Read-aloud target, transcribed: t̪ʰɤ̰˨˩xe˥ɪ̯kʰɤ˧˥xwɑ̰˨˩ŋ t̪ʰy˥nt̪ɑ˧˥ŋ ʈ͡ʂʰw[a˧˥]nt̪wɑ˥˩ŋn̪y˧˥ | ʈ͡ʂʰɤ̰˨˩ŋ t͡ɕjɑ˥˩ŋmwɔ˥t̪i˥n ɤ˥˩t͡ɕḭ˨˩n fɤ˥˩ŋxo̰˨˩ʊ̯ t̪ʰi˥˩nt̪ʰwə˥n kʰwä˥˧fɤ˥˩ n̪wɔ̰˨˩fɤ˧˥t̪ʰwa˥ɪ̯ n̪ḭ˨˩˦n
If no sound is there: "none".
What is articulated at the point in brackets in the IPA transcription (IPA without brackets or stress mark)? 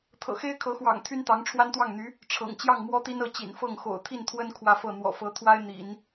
a˥